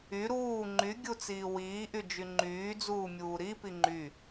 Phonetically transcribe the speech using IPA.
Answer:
y ɾ uː ŋ͡ǃ y ɡʲ u t͡s iː w iː ʔ y d͡ʒ y ŋ͡ǃ yː d͡z uː mʲ uː ɾ i p i ŋ͡ǃ y

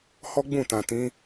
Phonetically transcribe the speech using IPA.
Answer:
h ɔ˦ ɡ͡b ũ˦˨ t ã˨ t ĩ˨˦

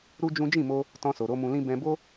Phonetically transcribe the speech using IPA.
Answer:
ɾ u˦ d͡ʒ ũ˦ d͡ʒ ĩ˦˨ m o˧ | t ɔ̃˧ s o˨ ɾ o˨˦ m ũ˧ l ĩ˦ b ɛ̃˧ b o˦

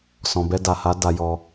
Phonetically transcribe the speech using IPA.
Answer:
s ɔ̃˨ b ɛ˧ d a˨ h a˨˦ d a˧ j ɔ˧

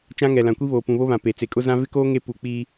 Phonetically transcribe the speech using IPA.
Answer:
t͡ʃ ã˦ ŋ ɛ˨ l ã˨ kʷ i˦ β oː˨ p ũ˨ β o˦ β ã˨ p e˨ t͡s e˨ kʼ ʊ˦ z ã˦ v ɪ˦ k oː˦ ŋ e˦ p u˨ k͡p iː˦

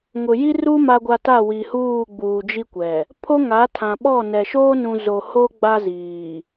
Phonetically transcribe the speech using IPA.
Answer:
ŋ ʊ˨ j i˦ r u˦ m a˨ ɡʷ a˨ t a˦˨ w i˨ h uː˦˨ ɡ͡b uː˨ d͡ʒ i˦ kʷ ɛ˨ | pʰ o˦ ŋ a˨˦ tʰ ã˨ ɓ ɔ˦˨ n ɛ˨ ʃ oː˦ n ũ˨ z o˨ h o˦ ɡ͡b a˦ z iː˨

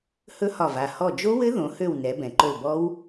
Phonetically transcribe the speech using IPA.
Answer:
h ɵ˦˥ h ɒ˧˩ v a˧˩ h ɔ˧˩ d͡ʒ o˦˥ w ɘ˦˥ ð õ˩˧ h ø˧˩ w n ɛ˩˧ b ɛ̃˩ ǃ ɵ˧˩ l b ɔ˦˥ w

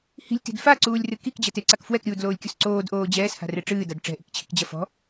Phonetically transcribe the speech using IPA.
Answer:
h i̤ lʲ t i̤ d f a ǀ uː lʲ r ɨ k i k d͡ʑ ɐ t e ǀ a k f w ɛ k ɾʲ uː d l oː lʲ kʲ u s ǀ oː d ʔ oː d͡ʑ ɛː s h a̤ r e ʈ͡ʂ ɨː d a d ʈ͡ʂ ɛ̤ ʔ i̤ k t͡ɕʰ i̤ k d͡ʑ ɐ f ɔ̤

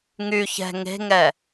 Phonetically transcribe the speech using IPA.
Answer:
ŋ y ç ɛ̤ ŋ e̤ ŋ ɛ

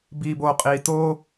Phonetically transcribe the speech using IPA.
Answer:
b iː b o qʼ iː t oː

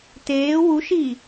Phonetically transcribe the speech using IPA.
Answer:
t eː w u ʃ iː

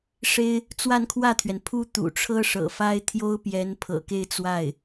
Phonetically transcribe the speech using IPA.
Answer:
ʂ e˥ ɪ̯ | t͡s w a˥˧ n kʰ w ä˥˩ t̪ʰ ɥ ɛ˩ n pʰ u˥ t̪ ṵ˨˩ ʈ͡ʂʰ ɤ˥ ʂ ɤ̰˨˩ f a˥ ɪ̯ t̪ʰ j o˥ ʊ̯ p j ɛ˧˥ n pʰ ɤ̰˨˩ k e˥˧ ɪ̯ t͡s w a˥˩ ɪ̯

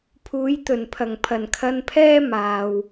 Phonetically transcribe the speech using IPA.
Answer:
pʰ uː˨˥ j t̪ ɵ˨˩ n pʰ ɐ˨˩ ŋ pʰ ɐ˨˩ n kʰ ɐ˧ n pʰ ɛː˥ m aː˨ w

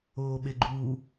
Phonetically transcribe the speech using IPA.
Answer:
oː ɓ e ɡ͡ǃ uː

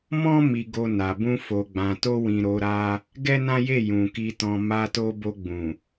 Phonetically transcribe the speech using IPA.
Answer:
m ɔ̃˦ m i˧ ɡ o˧ n a˨ b ũ˧ f o˨ ɡ͡b ã˨ t o˧ w ĩ˨ ɾ o˨˦ ɾ a˦ | ɡ ɛ˦ n ã˦ j e˦˨ j ũ˨ k i˧ t ɔ̃˧ m a˧ t o˧ b o˧ ɡ͡b ũ˨

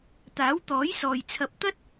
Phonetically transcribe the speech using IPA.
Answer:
t̪ aː˨˥ w t̪ ɔː˨˥ j s ɔː˨ j t͡sʰ ɐ˧ p̚ t̪ ɐ˥ t̚

